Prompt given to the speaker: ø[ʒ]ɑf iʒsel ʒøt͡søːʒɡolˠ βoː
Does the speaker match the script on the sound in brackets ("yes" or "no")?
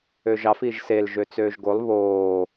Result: yes